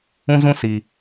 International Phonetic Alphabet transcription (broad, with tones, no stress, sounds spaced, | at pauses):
ũ˦ z ũ˦ s i˨